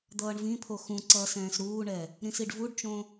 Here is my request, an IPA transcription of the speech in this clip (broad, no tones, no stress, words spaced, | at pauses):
d̪ʌːɳvĩpʰo xũ ǀʌːsɛ̃ːsɾuːɳɛ | ɾĩsiɖvuɖt͡ʃõ